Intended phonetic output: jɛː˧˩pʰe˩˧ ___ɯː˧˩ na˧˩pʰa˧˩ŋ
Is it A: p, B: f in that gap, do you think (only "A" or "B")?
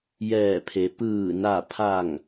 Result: A